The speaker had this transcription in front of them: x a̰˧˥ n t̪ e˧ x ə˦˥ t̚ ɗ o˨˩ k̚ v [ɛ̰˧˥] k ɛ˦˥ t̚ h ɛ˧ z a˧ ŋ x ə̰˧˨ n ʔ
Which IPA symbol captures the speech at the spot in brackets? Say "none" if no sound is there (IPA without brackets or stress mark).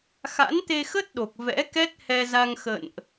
ɛ̰˧˥